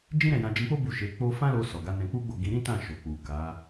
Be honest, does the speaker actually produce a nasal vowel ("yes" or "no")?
yes